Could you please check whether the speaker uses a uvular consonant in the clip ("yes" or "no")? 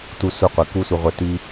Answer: yes